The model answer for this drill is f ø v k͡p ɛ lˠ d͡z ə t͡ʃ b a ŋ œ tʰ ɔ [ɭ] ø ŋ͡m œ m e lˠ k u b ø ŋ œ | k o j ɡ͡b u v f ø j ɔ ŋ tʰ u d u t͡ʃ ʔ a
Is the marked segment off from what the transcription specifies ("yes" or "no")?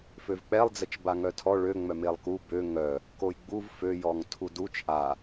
no